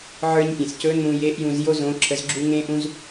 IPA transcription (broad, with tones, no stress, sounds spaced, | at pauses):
ʕ ə˞˧ ɲ pʲ ẽ˩ s c ɵ˧˥ n ũ˧ j e˧˥ ʔ j ũ˧ z j o˥ z õ˧˥ ǁʰ ə˧˥ z ɡ͡ǁ u˥ ŋ ẽ˥ ʔ ũ˥ z